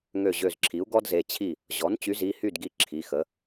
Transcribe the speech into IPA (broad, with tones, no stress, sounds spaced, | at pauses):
ŋ ø˧˩ ʑ ø˧˩ z ǁʰ i˩˥ u̯ ɡ ɔ˥ d z e˩˧˩ t͡ɕʰ i˥˩ | ʑ ɔ˩˥ n t͡ɕ y˩˥ z i˩˧˩ h y˥˩ d ɡ i˧˩ ǁʰ i˩˧˩ x ə˩˥